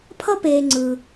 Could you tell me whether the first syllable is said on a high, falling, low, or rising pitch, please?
high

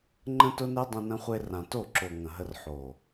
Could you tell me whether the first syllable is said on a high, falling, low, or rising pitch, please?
high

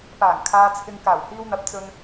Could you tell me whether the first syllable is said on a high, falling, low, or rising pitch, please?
low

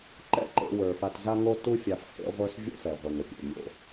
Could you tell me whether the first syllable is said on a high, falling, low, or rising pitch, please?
high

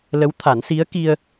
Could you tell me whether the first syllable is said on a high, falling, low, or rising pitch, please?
rising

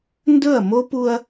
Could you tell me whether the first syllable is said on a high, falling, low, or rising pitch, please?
falling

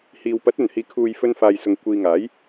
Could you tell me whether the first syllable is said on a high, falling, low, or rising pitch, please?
low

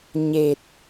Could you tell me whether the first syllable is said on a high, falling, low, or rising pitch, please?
low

